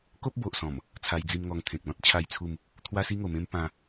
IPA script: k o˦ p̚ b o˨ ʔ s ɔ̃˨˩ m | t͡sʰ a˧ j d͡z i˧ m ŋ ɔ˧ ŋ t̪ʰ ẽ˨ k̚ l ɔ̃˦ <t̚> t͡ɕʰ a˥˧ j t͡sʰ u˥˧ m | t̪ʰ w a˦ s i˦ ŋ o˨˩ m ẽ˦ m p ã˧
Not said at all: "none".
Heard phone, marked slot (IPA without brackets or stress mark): t̚